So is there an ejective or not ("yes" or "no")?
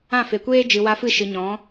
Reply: no